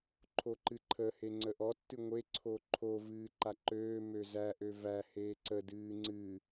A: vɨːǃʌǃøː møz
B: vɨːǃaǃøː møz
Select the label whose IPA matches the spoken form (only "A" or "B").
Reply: B